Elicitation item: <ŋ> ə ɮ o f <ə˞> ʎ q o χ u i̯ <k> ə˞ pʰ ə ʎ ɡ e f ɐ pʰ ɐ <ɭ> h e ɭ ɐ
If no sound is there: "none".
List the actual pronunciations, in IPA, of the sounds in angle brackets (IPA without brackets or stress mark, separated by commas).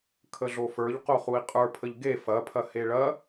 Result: kʰ, ə˞, qʼ, none